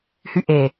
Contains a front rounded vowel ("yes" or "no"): yes